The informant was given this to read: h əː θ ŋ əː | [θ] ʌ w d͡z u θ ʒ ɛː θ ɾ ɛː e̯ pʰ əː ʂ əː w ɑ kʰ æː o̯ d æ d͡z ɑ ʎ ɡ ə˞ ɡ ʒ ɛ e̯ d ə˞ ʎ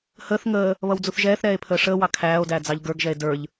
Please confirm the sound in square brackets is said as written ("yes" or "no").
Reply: no